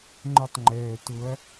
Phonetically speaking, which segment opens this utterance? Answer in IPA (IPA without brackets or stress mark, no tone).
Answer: ŋ͡ǃ